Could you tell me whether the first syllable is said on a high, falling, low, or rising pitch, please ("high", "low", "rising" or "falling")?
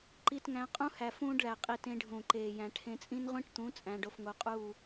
high